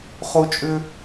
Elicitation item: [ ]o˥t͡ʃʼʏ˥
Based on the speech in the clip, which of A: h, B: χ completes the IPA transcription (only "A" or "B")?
B